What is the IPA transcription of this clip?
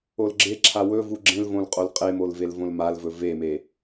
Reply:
o l ɡ͡ǁ e ǁʰ a w ɵ v u ɡ͡ǁ ẽ l v õ l qʼ o l qʼ e m o l v e l v õ l m a l v ɵ v e m e

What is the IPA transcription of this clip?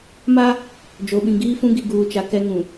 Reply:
m a˦ | d͡ʒ o˨ ɓ ĩ˨ ɡ iː˦ f ũ˦ ɡ i˨ ɡ uː˨ t͡ʃ a˨ k ɛ˦ ŋ ũ˨

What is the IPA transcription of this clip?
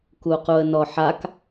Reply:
k u q u ə̯ n ɔ ħ a k

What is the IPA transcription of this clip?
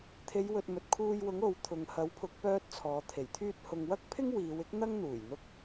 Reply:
t̪ʰ e˨˧ j w ɵ˨ t̚ m ɵ˨ t̚ kʰ uː˧ j w ʊ˨˥ ŋ o˨ w t̪ʰ ʊ˨ ŋ h ɐ˨˥ w pʰ ʊ˨˥ k̚ p œː˥ t̚ t͡sʰ ɔː˨˧ t̪ʰ e˨˩ j t̪ʰ yː˧ t̚ h ʊ˨ ŋ w ɐ˥ k̚ pʰ ɪ˥ ŋ w iː˨˧ w ɪ˥ k̚ n̪ ɐ˥ ŋ n̪ uː˨˩ j n̪ ʊ˧ k̚

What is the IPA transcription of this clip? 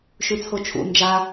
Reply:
ʃ ʉ t͡sʰ o t͡ʃʰ ṵ n d͡ʒ a

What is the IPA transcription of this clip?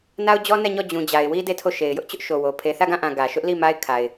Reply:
n a˦ ʊ̯ d͡ʑ ɔ˦ n ɛ˦˨ ɲ ɔ˦˨ d͡ʑ ũ˨ d͡ʑ a˨ ɪ̯ w i˦ d e˦˨ tʰ o˦˨ ʃ e˨ ɪ̯ j ʊ˦ ʔ t͡ɕ ʊ˦ ʔ ʃ o˨ w o˨ pʰ e˨ θ ä˦˨ ɡ ã˦˨ ʔ ã˨ ɡ ä˨ ʃ ʊ˦ ʔ l i˦˨ m a˦ ɪ̯ kʰ a˨ ɪ̯

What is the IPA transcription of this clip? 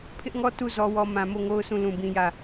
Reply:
pʰ ɪ˦ ʔ ŋ ɔ˦ t u˦˨ z ɔ˦ w ɔ˦ m ã˨ m o˦˨ ŋ o˦ ʊ̯ sʰ ũ˦˨ l ũ˦˨ b ĩ˦ j ä˦˨

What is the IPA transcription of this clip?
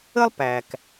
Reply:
ə˥ lˠ p æ˩ k

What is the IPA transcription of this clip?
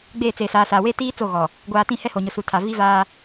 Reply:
ɡ͡b eː˦˨ t͡s eː˨ s aː˨ s aː˨ w eː˦ t iː˦ t͡s o˦˨ ɣ ɔ˨ | ɡʷ aː˨ t ĩ˦˨ h ɛ˦ h o˨ ɲ ʊ˨ s u˨ tʰ a˨ v i˦ v aː˦

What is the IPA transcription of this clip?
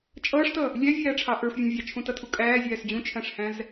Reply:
t͡ʃʼ ʌː ʂ t ʌ | lʲ æ vʲ æː ʈ͡ʂʰ ɑ ʔ ə˞ f vʲ æ̃ vʲ ɑ t͡ʃʰ ũ t ʌ tʰ u kʼ æː zʲ æː s d͡ʑ ũ t͡ʃʰ æ̃ ʂ h æ̃ z

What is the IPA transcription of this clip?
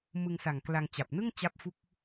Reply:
m ɯ˧ ŋ s a˨˩ ŋ k l a˧ ŋ t͡ɕ a˨˩ p̚ n ɯ˥˩ ŋ t͡ɕ a˥˩ p̚ f u˥˩ k̚

